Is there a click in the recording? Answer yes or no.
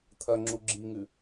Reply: yes